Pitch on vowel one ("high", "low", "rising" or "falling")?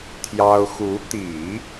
high